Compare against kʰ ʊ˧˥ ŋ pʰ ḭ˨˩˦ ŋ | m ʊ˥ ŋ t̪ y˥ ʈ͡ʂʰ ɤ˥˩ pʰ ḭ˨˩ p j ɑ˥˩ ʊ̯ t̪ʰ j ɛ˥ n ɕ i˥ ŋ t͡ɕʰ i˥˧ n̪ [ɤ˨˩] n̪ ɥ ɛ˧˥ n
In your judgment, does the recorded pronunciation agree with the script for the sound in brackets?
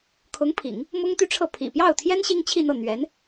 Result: no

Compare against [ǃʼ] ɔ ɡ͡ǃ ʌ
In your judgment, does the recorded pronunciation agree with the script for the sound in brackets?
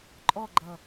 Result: yes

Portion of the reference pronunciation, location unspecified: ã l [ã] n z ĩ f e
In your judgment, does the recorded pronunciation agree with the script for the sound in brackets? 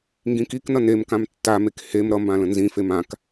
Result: no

